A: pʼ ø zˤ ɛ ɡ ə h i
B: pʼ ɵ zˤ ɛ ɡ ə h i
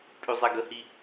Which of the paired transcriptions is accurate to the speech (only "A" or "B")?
A